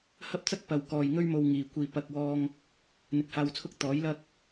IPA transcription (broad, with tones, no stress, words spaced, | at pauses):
hɐ˥p̚t͡sɐ˥k̚ pɐ˨wkɔː˨j ŋɵ˥ɥmo˧wŋiː˨ kʷiː˨ pɐ˨k̚wɔː˧ŋ | n̪ɪ˨k̚haː˧wt͡sʰʊ˥k̚ t̪ɔː˨˥jlɐ˥k̚